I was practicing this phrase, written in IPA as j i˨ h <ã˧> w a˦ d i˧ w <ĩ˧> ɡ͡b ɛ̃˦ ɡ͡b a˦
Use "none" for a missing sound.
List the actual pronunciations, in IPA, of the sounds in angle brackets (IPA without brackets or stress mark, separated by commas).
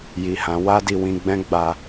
ã˨˦, ĩ˧